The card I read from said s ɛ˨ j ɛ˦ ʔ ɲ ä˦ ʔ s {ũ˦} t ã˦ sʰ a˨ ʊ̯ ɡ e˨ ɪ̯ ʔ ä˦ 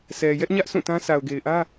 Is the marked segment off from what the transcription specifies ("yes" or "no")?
yes